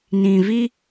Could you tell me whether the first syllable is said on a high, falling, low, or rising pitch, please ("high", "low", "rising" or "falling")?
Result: low